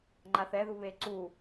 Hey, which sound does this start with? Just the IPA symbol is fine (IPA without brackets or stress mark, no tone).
ŋ͡ǃ